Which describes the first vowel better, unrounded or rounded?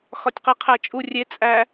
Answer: rounded